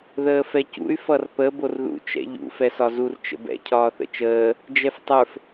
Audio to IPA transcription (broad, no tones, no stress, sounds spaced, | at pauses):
ð əː f ɛ c ṵ y̯ f ʌ r p ə b o r ð ṵ t͡ʃ ɛ̰ ʎ ṵ f ɛ s ɒ z u r t͡ʃ ə̰ b ɛ̰ cʰ ɒː θ ə̰ t͡ʃ əː | d͡ʒ ɛ f tˤ ə˞ f